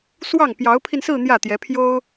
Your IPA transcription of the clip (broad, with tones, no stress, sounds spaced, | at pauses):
s w ɑ˥˩ ŋ p j ɑ˧˥ ʊ̯ pʰ i˧ n s ɹ̩˥˧ n̪ j ä˥˩ t̪ j ɛ˧˥ pʰ j o˥ ʊ̯